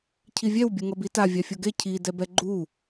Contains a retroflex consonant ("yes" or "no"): no